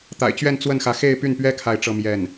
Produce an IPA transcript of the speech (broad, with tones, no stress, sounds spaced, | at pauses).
t̪ a̰˨˩ ɪ̯ t͡ɕ ɥ ɛ˥˧ n t͡s w ə˥˩ n x ä˧˥ x e˥˧ ɪ̯ p y˥˩ n p ɥ ɛ˥ kʰ a˥˧ ɪ̯ ʈ͡ʂ ɤ˥˧ m j ɛ˥˩ n